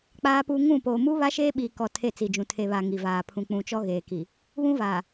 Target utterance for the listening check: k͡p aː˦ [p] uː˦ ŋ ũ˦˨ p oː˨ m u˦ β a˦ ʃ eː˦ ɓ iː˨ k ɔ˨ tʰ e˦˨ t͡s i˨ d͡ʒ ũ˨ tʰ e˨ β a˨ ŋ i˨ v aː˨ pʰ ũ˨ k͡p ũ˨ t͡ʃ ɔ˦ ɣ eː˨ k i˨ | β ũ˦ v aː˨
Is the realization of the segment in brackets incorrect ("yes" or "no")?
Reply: no